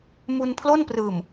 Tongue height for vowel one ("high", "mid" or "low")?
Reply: high